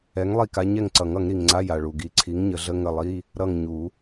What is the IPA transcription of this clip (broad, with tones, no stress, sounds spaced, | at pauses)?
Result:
ɛ˨˥ ŋ lˠ i˦˨ k a˨˥ ɲ ɛ˦˨ ŋ ǀ ʌ˨˩˦ ŋ ʌ˨˩˦ ŋ ɾ i˩ ŋ ŋ͡ǀ a˧˥˧ j a˩ ɭ u˩ ɡ i˨˥ ǀʰ i˨˥ ŋ ɲ ə˨˩˦ ɮ ə˧˥˧ ŋ ə˦˨ lˠ i˧˥˧ | ɾ ʌ˦˨ ŋ ɲ u˨˩˦